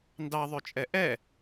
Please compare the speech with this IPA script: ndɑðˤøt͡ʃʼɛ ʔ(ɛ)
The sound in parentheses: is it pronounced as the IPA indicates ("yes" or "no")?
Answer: yes